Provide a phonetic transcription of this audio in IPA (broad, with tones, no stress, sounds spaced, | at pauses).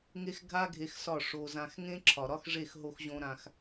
ŋ e˦ x ɡʱ a˦ ɡʱ e˧ x s ɒ˦˨ ʂ o˧ z ã˧ x ŋ ẽ˦ ǁʰ ɒ˨ ɾ ɒ˦ x ʐ e˦˨ x ɦ o˦ x ʑ õ˦ ɾ ã˧ x